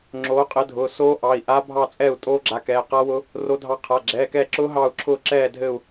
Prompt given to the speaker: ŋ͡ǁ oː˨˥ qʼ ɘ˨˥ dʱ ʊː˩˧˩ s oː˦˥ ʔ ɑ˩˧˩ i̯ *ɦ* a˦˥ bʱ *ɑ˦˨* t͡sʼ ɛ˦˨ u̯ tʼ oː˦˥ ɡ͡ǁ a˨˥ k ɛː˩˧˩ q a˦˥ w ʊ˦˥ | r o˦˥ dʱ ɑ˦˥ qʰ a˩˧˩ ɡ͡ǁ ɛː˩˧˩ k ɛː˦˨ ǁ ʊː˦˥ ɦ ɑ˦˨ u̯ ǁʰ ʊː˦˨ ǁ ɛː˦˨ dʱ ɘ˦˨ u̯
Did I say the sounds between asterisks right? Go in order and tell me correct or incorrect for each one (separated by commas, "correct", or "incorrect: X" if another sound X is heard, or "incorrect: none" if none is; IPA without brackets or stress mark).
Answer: incorrect: ʔ, correct